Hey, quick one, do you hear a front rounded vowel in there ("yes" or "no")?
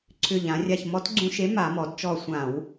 yes